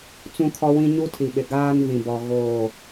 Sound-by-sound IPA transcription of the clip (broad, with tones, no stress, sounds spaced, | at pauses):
t͡s ũ˦ kʰ ɔ˦ w ĩ˦ ɲ u˦ tʰ i˨ ɓ ɪ˨ ɡ aː˦ n v ĩ˨ b ɔ˨ ɣ oː˦˨